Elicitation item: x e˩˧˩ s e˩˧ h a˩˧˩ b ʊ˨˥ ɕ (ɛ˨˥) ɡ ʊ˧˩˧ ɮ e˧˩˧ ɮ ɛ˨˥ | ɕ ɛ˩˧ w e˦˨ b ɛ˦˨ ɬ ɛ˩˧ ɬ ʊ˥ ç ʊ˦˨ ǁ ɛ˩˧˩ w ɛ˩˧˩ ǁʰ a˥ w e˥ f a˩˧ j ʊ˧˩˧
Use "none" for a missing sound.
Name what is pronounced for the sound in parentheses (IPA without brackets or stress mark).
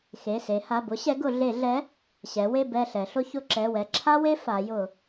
ɛ˨˥